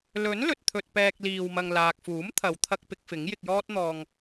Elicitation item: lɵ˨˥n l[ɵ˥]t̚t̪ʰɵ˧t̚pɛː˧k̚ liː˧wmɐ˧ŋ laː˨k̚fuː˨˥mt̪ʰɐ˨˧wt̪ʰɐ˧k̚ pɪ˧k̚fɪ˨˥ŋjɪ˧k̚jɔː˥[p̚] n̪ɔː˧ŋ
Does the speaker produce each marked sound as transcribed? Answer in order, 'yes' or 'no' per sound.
no, no

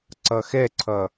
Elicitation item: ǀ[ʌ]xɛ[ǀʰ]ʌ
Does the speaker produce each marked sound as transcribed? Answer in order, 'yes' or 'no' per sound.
yes, yes

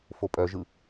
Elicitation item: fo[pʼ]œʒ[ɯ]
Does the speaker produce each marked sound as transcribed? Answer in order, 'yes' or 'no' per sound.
yes, yes

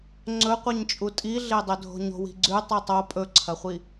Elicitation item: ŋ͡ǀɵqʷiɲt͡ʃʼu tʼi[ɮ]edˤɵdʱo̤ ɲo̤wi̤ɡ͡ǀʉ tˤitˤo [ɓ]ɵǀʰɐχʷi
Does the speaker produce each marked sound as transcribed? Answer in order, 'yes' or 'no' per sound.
yes, no

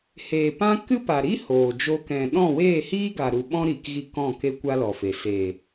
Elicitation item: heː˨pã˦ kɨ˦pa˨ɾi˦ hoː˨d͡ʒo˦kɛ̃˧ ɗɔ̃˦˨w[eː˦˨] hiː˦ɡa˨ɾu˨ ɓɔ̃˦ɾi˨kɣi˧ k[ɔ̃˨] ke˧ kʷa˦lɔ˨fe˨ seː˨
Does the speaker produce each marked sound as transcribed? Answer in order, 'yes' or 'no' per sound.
yes, no

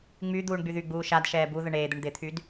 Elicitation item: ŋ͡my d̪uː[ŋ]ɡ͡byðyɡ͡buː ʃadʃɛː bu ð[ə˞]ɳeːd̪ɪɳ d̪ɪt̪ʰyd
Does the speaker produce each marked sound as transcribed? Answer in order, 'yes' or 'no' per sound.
no, no

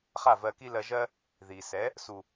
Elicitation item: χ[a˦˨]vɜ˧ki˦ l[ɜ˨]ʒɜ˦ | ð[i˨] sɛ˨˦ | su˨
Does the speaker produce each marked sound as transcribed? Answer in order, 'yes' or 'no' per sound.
yes, no, yes

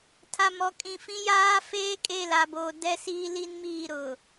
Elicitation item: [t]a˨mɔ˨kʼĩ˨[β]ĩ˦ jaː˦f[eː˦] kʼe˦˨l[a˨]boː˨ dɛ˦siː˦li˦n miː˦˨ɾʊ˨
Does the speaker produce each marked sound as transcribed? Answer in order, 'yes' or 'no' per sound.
no, no, yes, yes

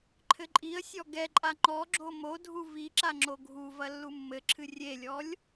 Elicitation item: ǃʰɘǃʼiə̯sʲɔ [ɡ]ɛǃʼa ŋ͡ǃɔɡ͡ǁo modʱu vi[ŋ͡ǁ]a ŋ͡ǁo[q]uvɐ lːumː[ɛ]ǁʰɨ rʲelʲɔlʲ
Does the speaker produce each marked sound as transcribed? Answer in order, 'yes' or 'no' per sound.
yes, no, no, no

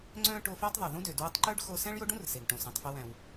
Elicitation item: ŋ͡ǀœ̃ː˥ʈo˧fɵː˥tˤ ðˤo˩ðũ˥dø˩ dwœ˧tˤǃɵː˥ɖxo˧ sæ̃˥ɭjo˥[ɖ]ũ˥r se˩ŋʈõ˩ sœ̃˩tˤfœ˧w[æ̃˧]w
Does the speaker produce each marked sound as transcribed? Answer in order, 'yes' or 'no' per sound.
yes, no

